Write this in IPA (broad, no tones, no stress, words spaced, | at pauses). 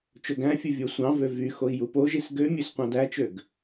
t͡ʃoɡæ̃fʲɯ vʲosʷɑ̃vø vy xoi̯jupoʒis ɡømʲøs qʷɑ̃dæt͡ʃøɡ